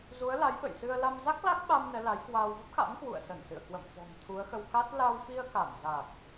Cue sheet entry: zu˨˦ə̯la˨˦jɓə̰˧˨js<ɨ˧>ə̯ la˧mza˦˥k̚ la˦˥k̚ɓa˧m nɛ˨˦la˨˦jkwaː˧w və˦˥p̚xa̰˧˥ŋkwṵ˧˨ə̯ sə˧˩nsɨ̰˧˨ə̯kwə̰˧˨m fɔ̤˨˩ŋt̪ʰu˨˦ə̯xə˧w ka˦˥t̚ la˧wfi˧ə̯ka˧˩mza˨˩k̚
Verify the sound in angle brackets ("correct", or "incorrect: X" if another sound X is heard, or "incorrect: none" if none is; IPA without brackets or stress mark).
correct